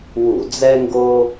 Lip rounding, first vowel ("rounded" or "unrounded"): rounded